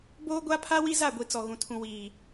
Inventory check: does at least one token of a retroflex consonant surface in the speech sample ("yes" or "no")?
no